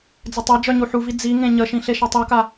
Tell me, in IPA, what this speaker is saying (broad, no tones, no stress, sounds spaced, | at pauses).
d͡z ə tˤ a d͡ʒ œ ɲ u ħ u v i d͡z i ŋ ẽ ɲ ə ʃ ĩ ɬ e ʃ ɑ tˤ u k a